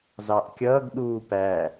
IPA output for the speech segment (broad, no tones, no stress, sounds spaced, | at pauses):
z ɑ ʔ kʲ ʌː ɡ ɗ uː p æ